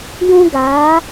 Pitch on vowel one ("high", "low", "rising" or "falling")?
high